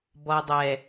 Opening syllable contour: low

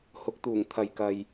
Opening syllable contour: rising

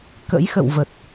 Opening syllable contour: rising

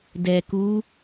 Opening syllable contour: low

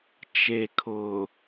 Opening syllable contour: low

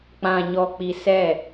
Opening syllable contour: low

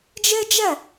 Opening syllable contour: high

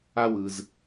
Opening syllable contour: high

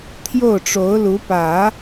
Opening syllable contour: falling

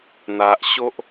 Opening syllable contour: low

